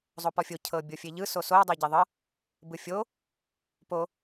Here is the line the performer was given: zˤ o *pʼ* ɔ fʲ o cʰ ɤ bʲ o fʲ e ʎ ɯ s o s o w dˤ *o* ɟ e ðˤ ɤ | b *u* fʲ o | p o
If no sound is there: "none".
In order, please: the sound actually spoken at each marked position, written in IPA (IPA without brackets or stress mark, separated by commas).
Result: p, o, ɯ